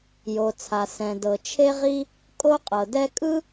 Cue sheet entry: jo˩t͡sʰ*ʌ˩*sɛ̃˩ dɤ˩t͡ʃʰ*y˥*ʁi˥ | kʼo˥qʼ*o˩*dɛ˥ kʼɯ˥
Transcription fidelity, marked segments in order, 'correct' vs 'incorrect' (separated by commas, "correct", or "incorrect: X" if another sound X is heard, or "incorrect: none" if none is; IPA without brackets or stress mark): incorrect: a˩, incorrect: e˥, incorrect: ɤ˩